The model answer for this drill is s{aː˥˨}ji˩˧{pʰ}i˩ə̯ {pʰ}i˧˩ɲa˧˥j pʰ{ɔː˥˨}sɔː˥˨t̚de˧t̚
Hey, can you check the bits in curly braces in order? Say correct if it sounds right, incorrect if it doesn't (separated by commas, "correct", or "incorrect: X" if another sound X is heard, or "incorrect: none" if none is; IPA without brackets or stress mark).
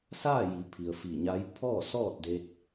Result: correct, correct, incorrect: f, correct